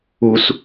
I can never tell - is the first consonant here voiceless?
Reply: yes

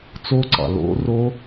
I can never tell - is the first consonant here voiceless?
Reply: yes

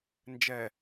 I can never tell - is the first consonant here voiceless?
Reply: no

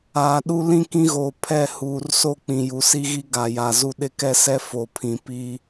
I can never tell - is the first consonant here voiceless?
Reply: no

